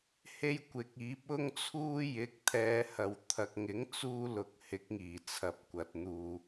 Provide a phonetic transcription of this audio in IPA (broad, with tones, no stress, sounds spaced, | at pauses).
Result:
h e˥ j kʷ ɪ˨˥ k̚ iː˨˥ p̚ ʊ˥ ŋ t͡sʰ uː˥ j ɪ˨˥ k̚ t̪ʰ ɛː˨˧ h ɐ˨ w t̪ʰ ɐ˨ k̚ ŋ ɪ˨˥ ŋ t͡s uː˥ l ʊ˧ k̚ h ɪ˨˥ k̚ ŋ iː˨˩ t͡sʰ ɐ˨ p̚ kʷ ɐ˨ t̚ n̪ uː˨